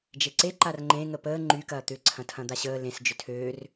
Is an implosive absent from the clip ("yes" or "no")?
yes